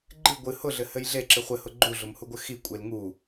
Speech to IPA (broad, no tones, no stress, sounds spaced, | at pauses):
ɡ͡ǃ ɨ ɡʷ ɨ h ʊ ɮ ɘ h ɘ j ɮ e ǁ ɨ χʷ ɘ h ʊ ɡ͡ǃ u ɮ ʊ m h u ɡʷ ɘ x i kʷʼ e l ŋ u